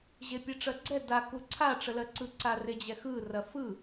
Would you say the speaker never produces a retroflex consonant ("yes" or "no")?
no